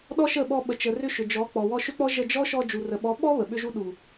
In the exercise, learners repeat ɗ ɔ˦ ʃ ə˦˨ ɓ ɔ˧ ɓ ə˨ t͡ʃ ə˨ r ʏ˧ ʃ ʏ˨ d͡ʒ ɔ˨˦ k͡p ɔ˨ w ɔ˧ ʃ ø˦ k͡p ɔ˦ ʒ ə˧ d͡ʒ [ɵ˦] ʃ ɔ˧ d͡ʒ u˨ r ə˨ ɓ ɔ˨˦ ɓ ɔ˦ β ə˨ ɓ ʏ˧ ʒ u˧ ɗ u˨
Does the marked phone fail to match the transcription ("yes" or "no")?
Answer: yes